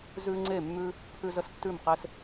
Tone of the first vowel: high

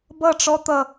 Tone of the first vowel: falling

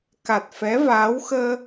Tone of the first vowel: low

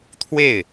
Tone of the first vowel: falling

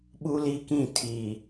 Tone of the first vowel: high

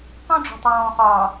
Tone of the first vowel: high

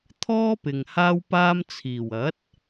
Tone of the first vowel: high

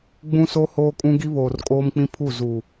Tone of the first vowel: high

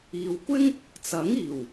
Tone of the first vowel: low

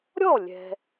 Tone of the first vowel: falling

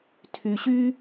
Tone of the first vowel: low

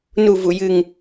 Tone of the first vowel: low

